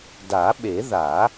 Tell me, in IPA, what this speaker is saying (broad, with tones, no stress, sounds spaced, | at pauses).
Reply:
d a˨˩˦ ɓ e˨˩˦ ð a˨˩˦